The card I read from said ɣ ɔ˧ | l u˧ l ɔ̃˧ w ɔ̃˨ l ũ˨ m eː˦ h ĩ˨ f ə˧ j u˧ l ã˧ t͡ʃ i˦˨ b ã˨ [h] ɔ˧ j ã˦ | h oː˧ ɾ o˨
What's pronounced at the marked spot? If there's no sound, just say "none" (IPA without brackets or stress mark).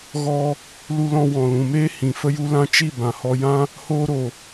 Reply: h